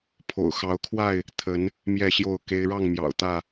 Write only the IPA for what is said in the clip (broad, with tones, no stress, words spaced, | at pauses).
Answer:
pʰo̰˨˩ʊ̯xɑ˨˦ʊ̯kʰwa˥˨ɪ̯ | t̪ʰə˨˦n | mjɛ˥˨ɕjo˥˨ʊ̯ ke˦ɪ̯ ɻɑ˥˨ŋmjɑ̰˨˩ʊ̯ t̪ä˥˨